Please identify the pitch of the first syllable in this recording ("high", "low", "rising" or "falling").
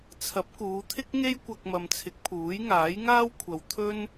rising